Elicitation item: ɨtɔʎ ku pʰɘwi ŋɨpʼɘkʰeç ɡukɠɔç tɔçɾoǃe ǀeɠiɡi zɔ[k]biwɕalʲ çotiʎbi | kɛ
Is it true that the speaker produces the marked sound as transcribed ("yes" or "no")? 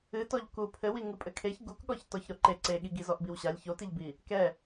no